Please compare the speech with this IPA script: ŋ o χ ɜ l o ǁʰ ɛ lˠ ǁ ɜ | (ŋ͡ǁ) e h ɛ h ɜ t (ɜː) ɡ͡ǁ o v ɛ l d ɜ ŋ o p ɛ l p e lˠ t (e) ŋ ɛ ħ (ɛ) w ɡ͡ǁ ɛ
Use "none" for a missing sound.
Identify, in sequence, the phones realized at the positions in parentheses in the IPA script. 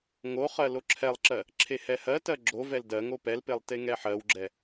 ǁʰ, ɜ, e, ɜ

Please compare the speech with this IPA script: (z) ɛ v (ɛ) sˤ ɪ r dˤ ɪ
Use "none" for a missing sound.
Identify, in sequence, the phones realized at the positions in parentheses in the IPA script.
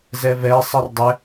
z, ɛ

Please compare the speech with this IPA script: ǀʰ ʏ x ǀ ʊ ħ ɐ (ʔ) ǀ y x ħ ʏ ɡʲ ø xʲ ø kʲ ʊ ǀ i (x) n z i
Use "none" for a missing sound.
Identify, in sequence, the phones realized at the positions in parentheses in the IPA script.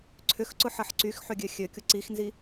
ħ, x

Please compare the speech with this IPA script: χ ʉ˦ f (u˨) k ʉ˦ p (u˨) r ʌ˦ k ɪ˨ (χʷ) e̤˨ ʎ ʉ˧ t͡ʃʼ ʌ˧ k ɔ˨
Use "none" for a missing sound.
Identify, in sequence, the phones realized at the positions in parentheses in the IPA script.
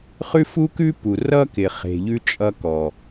u˦, u˨, χ

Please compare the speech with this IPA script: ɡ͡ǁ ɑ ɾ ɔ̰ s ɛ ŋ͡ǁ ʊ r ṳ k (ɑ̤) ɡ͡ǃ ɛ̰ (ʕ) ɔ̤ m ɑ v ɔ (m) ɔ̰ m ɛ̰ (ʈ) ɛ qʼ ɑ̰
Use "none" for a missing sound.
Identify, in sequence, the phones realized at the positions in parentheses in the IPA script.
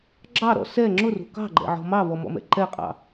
ɑ̤, ʕ, m, ǃ

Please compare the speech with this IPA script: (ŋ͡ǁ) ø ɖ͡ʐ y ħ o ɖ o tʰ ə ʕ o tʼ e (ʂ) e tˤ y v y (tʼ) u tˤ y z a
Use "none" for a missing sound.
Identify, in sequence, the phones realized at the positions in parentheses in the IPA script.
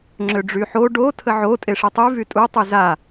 ŋ͡ǁ, ʂ, tʼ

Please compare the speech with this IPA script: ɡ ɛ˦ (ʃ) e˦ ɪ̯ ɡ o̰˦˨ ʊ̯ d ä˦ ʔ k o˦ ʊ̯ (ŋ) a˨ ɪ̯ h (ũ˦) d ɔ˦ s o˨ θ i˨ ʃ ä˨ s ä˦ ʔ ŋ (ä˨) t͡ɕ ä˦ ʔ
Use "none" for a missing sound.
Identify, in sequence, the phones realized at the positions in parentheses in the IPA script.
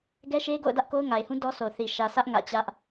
ʃ, ŋ, ũ˦, ä̰˦˨

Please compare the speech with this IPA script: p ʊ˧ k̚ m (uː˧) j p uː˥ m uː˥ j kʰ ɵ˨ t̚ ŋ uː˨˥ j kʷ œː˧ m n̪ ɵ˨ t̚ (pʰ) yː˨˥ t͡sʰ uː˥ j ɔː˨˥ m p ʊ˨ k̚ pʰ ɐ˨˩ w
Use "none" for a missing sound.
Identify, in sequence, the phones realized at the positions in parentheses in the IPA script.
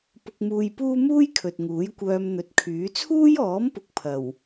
uː˧, kʰ

